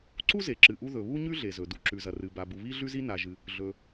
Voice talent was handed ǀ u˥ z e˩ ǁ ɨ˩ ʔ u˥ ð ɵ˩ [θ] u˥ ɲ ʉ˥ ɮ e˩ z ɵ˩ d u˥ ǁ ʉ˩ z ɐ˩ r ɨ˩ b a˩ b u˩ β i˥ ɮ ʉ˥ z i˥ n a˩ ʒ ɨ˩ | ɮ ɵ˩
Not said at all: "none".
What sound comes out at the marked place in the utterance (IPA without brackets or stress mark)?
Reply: β